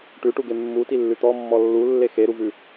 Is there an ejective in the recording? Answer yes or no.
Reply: no